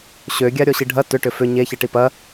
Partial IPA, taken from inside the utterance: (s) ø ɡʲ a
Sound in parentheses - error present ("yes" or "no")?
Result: yes